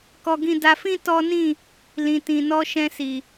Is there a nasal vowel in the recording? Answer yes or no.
yes